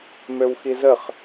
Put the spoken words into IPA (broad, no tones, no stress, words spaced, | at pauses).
møwxizəχ